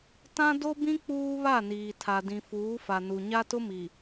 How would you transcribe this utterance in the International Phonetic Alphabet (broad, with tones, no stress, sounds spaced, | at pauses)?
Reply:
t ã˦ d o˦ b ĩ˦ k͡p uː˦ β a˦˨ n iː˨ tʰ a˨ d ĩ˨ f uː˨˦ f a˨ n u˨ ɲ a˦ t ʊ˦ m i˨